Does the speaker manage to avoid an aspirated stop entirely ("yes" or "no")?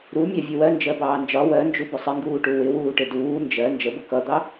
yes